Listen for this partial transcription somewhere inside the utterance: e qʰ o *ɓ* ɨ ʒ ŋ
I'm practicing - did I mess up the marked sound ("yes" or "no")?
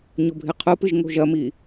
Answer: yes